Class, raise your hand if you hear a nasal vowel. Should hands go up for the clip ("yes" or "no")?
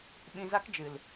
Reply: yes